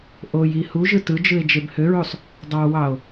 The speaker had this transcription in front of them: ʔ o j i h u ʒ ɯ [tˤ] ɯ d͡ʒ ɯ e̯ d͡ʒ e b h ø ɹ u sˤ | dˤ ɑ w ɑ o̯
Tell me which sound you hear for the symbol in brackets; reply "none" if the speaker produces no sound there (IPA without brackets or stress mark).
t